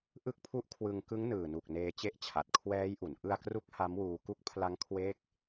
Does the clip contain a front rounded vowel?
no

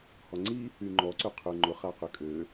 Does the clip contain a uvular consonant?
yes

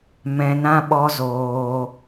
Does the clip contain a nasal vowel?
yes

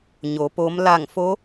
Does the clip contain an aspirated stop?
no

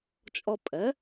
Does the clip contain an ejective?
yes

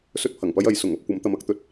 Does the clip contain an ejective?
no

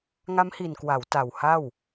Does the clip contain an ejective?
no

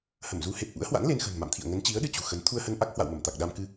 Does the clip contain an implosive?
yes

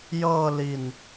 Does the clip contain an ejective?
no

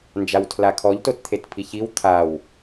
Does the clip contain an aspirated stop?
yes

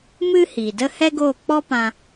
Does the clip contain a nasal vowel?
yes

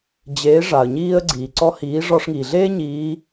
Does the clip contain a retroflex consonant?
yes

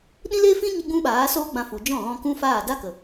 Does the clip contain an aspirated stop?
no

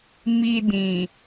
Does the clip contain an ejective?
no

